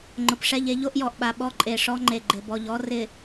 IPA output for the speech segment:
ŋ͡ǃʊ˨pʂɛ˦˨ʎ e˦ʎo˦ʔjɔ˨ʔɓa˨ ɓɔ˦ǃʼe˨ʂɔ˦ŋ͡ǃe˨ ɡ͡ǃɪ˨bɔ˨ʎɔ˦ rɪ˨

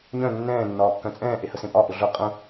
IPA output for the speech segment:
ɲœ̃ nːɛ̃ː nːɒːkːœ̃t͡sʼɛ̃ː ʔehəsẽpʼɒ ʔʊɮʊ qʼə̃

